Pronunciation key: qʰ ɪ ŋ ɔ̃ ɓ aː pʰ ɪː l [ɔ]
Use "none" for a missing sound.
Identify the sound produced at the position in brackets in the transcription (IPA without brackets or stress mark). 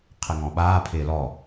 ɔ